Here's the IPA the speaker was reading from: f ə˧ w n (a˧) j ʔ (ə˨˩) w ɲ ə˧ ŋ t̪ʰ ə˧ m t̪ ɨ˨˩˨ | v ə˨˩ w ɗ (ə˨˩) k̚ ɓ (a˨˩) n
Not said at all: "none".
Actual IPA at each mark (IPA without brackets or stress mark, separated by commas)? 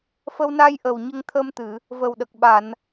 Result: a˧, ə˨˩, ə˨˩, a˨˩˨